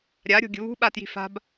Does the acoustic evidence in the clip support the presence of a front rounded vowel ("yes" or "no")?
no